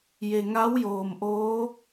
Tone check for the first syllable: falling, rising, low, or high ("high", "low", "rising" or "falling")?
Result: low